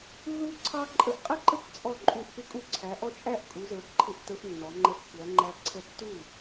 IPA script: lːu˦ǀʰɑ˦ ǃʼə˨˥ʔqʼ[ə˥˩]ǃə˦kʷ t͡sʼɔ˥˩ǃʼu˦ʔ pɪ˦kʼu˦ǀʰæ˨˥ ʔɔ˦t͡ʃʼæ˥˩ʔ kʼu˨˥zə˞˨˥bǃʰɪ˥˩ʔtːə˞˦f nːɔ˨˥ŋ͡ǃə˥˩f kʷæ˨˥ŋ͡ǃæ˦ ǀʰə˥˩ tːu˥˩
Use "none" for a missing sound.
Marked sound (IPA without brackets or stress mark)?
ə˥˩